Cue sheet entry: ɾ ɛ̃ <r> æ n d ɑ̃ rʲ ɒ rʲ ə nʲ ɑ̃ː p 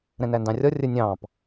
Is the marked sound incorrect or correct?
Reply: incorrect